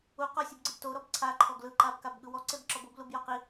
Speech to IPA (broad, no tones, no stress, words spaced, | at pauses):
u qɔsʲubɡ͡ǀɯb toɾɔb ǀʰaǃʰɔ ɡlɯǃabkabɠɯ wɔǀebǁɔb oblubjɔ qi